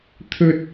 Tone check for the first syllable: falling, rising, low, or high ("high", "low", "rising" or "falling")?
high